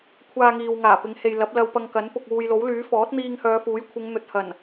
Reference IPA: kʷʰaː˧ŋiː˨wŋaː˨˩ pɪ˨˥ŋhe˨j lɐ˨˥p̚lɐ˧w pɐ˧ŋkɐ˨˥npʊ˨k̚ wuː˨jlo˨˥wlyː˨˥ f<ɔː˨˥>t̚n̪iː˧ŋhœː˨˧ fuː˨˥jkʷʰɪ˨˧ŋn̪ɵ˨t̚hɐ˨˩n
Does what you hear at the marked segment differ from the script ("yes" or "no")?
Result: no